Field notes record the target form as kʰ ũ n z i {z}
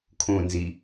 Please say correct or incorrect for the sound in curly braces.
incorrect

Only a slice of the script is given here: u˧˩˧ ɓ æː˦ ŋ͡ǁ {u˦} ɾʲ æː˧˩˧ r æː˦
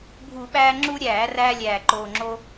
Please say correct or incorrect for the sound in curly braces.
correct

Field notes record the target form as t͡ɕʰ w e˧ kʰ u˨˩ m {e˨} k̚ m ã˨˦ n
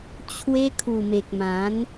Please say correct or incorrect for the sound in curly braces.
correct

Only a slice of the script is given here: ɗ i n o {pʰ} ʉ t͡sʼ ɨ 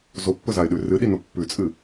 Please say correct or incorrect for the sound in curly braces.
incorrect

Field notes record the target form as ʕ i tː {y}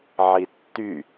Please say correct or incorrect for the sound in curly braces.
correct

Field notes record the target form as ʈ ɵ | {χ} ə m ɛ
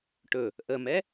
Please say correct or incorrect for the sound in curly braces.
incorrect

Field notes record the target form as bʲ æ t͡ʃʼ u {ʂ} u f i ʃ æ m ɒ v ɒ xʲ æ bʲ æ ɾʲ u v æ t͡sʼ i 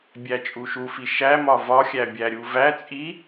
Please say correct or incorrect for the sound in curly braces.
incorrect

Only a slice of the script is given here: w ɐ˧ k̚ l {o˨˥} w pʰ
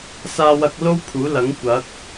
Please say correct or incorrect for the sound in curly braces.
incorrect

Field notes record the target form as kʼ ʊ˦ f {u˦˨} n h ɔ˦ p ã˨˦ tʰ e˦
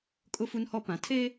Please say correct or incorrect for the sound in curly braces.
incorrect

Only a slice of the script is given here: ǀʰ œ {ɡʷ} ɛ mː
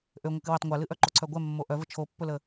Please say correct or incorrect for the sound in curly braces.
correct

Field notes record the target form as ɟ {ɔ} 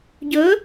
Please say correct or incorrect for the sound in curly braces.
incorrect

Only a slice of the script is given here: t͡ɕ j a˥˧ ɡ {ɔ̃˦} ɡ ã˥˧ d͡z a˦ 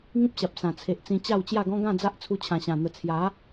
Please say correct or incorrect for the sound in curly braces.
correct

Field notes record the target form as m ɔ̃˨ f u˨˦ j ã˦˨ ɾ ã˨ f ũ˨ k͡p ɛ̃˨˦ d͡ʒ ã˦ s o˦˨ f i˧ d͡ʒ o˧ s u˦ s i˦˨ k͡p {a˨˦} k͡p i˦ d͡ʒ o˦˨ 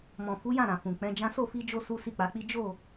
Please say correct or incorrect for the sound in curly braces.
correct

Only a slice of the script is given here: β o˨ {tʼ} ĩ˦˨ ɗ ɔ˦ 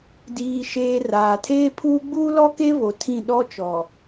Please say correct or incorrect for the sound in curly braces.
incorrect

